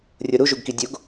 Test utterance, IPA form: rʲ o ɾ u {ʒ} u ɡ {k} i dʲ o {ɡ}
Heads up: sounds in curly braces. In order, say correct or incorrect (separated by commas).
correct, correct, correct